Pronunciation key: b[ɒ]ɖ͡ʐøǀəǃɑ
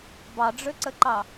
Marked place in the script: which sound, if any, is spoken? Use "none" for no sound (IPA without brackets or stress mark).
ɑ